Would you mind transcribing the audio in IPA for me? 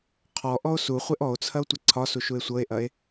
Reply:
qʰ ɔ ʔ ɔ o̯ s u χʷ e ʔ ɔ o̯ t͡sʰ ɐ o̯ tʷ ɐ ǀʰ ɒ s u ʃ u e̯ sʷ ɤ e̯ ʔ ɐ e̯

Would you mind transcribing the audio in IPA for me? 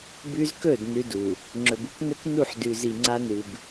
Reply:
b ʉ˦ z k ɵ˦˨ d n ʉ˦ d u˨ | ŋ͡ǁ ɵ˨ b u˦ k n ɵ˦ k n u˦˨ ħ d ʉ˨ z i˨ ŋ͡ǀ a˦ n ɨ˨ b

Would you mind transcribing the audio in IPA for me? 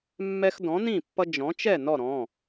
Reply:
mː ɛ˦ x d ɔ̃˨˥ n ĩ˥˨ pː ʌ˦ d͡ʒ ɔ̃˨˥ t͡ʃ ɛ˥˨ n ɔ˥˨ ɾ ɔ̃˩˧˩

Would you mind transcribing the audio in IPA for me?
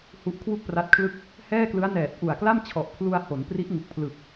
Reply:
h u˦˥ ʔ kʰ w u˥˩ k̚ p r a˦˥ t̚ kʰ l ɯ˥˩ k̚ | h ɛː˥˩ k l ɯ˦˥ a̯ n ɛː˨˩ t̚ ʔ u˨˩ a̯ k l a˥˩ m t͡ɕʰ ɔ˨˩ ʔ pʰ l u˧ a̯ h o˩˦ n p r i˦˥ ʔ ŋ u˨˩ k̚ pʰ l ɯ˨˩ k̚

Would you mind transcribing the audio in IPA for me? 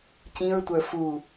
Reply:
c ĩ ɹ tʷ ə˞ f u

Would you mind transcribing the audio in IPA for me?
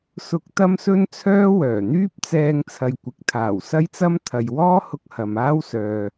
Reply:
s ʊ˧ k̚ t̪ ɐ˥ m s ɵ˥ n t͡sʰ œː˥ w œː˨˩ n̪ yː˥ p̚ t͡s ɛː˧ ŋ t͡sʰ ɐ˨ j kʷ ɪ˨˥ k̚ t̪ʰ aː˨˩ w s ɐ˥ j t͡s ɐ˥ m t̪ʰ ɐ˨ j w ɔː˥ h ʊ˧ k̚ h ɐ˨ m aː˥ w s œː˨

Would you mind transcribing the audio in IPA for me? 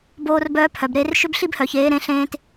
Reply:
b oː˦ r b œː˦ pʰ œ˨ b ɾ e˦ r ʃ ʏ˦ b ɬ i˦ b h œ˨ ç eː˨˦ ɾ ẽ˦ ɬ ẽː˦ t

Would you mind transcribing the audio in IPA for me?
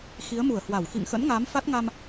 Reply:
x i˨˦ ə̯ m u˧˩ ə̯ h w a˧˩ w x ḭ˧˨ ŋ x ə̰˧˥ n ŋ aː˨˦ m f a˦˥ t̚ ŋ a˧ m

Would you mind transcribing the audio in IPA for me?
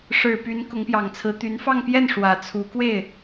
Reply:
ʂ ɻ̩˨˩ p y˧˥ n k ʊ˧˥ ŋ p j ɑ˨˩ ŋ t͡sʰ ɹ̩˧˥ t̪ y˧˥ n f ɑ˥˧ ŋ p j ɛ˥˩ n ʂ w ä˨˩ t͡sʰ u˧˥ k w e˥˩ ɪ̯

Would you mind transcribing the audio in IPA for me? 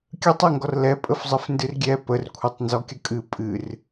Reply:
kʲ ə tˤ e ŋ ɡ ɔ r l ɛ pʼ ə f zˤ ə f n d ɨ r ɡʲ ɛ p ə r kʷʰ e tˤ n z ɔ kʲ ə kʼ ɨ pʼ ɨ r

